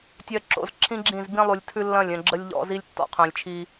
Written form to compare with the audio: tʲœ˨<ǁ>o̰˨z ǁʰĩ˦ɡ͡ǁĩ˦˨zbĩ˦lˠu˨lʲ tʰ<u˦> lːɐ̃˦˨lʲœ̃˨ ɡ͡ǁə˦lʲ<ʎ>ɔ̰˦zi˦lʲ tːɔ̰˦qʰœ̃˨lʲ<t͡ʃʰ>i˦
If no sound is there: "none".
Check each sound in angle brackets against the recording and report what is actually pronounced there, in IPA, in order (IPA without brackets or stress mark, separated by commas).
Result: ǁ, ʉ˦, ʎ, t͡ʃʰ